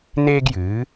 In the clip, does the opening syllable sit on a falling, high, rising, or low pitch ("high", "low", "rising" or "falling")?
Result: high